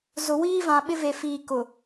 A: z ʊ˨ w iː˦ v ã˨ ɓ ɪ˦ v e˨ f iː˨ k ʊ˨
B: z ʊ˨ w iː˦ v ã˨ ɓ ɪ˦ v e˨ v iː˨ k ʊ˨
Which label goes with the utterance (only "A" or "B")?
A